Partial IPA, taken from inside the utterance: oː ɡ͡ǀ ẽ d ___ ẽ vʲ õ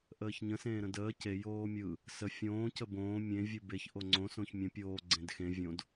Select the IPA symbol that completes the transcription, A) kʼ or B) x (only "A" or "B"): B